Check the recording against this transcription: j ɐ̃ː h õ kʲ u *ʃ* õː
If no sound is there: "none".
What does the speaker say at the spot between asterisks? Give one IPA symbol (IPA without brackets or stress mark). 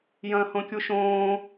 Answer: ʃ